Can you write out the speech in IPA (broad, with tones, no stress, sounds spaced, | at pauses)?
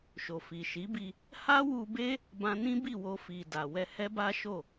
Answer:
ʃ o˨ f i˨ ʃ i˨˦ b i˧ | h a˦ w u˧ b e˦ | b ã˧ n ĩ˦ b i˦˨ w o˧ f i˨ d a˨ w ɛ˧ h ɛ˦ b a˦ ʃ o˦˨